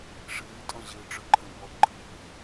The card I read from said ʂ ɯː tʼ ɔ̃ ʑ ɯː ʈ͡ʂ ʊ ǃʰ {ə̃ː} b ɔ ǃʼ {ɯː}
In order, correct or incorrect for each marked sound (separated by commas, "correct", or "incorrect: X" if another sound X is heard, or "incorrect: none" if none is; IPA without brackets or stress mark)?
correct, correct